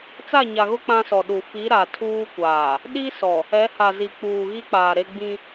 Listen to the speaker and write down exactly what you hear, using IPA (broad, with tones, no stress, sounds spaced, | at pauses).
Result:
t͡s a˦˨ ɲ a˨ ɣ ʊ˦ k͡p ã˦ s ɔ˨ ɗ u˨ f i˨˦ ɾ a˨ tʰ uː˦ kʷ aː˨ | ɗ i˦ s ɔ˨ | ɛ˨˦ h a˨ z i˨ k͡p uː˨ ɣ i˦ k͡p aː˨ ɾ e˦ ɡ͡b ĩ˦